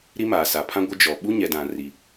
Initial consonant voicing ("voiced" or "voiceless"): voiced